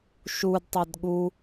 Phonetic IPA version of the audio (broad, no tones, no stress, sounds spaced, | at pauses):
ʃ u d tˤ a d ɠ u